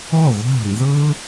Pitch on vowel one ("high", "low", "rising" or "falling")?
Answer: falling